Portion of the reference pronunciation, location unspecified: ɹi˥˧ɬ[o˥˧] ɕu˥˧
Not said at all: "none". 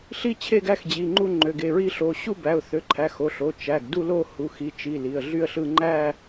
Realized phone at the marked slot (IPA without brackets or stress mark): o˩˧˩